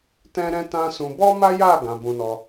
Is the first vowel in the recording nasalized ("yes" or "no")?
yes